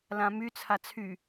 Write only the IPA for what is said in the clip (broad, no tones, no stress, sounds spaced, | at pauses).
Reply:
l ã m y t͡sʰ a t͡sʰ y